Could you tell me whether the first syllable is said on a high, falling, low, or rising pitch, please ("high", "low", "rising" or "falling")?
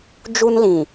high